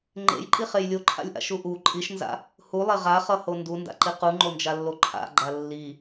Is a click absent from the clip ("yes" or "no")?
no